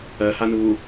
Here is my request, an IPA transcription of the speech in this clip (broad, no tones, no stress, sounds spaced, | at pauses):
ɜ h a n uː